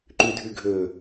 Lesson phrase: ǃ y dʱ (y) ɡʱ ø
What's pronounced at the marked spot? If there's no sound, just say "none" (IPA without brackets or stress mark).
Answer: y